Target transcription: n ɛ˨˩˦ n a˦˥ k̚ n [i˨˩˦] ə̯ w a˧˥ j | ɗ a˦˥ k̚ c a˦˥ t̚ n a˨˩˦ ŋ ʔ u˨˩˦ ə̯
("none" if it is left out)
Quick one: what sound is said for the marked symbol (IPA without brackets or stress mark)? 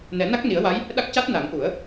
i˨˩˦